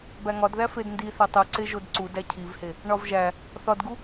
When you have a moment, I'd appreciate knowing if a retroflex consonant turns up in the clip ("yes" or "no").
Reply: yes